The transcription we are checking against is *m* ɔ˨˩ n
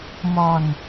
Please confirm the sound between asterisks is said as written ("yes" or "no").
yes